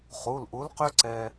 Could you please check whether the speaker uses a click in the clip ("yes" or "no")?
yes